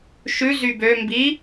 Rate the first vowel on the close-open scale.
close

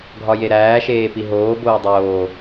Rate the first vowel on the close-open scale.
open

